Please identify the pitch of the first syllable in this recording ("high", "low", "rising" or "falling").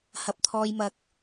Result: low